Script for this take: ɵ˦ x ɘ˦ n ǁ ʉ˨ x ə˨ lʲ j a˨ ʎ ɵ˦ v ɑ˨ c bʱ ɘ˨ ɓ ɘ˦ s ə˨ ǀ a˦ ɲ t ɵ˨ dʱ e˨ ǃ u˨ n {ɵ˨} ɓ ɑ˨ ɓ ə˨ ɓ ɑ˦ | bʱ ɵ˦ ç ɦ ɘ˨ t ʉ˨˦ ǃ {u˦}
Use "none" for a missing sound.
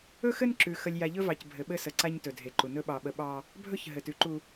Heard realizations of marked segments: ɵ˦, u˦

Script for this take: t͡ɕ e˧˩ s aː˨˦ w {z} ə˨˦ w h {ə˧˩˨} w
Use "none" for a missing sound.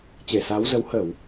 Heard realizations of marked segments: z, ə˧˩˨

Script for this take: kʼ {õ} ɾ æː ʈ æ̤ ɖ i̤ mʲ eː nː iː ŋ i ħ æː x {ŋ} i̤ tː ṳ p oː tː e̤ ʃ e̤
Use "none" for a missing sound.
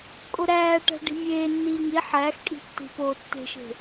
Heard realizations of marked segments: o, kʼ

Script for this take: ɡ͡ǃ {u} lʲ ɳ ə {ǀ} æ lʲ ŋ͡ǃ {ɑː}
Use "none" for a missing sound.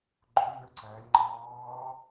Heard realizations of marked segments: ʊ, ǀ, ɑː

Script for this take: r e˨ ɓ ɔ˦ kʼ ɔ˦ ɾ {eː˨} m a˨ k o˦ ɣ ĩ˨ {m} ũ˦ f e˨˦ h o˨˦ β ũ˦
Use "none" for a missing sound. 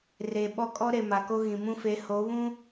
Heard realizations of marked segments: e˨, m

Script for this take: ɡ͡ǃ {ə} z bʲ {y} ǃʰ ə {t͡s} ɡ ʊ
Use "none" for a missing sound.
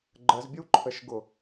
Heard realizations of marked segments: ə, u, ʃ

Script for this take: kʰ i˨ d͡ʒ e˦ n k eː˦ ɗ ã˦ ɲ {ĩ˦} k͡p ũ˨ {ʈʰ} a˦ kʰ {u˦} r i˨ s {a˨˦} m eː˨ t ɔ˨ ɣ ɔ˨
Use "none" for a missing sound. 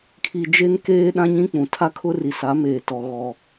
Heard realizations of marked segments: ĩ˦, tʰ, ʊ˦, a˨˦

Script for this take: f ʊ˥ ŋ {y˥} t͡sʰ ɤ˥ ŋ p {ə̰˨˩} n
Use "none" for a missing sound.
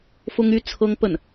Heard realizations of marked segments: y˥, ə˥˩

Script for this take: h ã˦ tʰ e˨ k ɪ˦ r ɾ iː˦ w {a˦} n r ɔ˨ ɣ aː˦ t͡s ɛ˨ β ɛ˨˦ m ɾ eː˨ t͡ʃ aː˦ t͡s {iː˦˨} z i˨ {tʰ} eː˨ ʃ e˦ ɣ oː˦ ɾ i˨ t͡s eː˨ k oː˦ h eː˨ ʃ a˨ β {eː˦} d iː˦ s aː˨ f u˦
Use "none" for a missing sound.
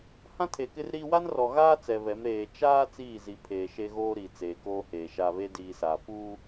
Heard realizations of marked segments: a˦, iː˦˨, pʰ, e˦

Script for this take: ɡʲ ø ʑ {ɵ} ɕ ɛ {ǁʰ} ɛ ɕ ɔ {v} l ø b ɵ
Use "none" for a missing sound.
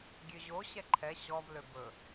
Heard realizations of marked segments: o, ǃʰ, v

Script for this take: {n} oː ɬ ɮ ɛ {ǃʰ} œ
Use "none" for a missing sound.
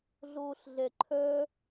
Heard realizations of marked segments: ɮ, ǃʰ

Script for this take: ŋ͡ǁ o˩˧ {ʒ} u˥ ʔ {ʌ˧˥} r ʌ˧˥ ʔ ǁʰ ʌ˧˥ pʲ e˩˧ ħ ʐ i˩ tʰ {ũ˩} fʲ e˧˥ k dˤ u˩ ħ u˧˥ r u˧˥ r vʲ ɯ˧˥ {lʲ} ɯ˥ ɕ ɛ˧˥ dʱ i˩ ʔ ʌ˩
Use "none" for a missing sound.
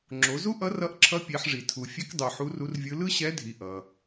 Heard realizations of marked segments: z, ʌ˧˥, u˩, l

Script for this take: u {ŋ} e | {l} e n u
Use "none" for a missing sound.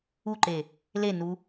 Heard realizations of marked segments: ǃ, l

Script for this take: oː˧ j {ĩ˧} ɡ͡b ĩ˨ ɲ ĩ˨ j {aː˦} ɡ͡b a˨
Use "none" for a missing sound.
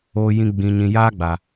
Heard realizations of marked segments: ĩ˧, aː˦

